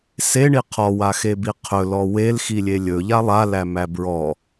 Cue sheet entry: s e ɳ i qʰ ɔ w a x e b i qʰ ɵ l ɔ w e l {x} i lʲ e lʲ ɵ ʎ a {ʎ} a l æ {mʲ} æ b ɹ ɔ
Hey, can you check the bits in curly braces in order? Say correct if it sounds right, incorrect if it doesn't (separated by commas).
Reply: correct, incorrect, incorrect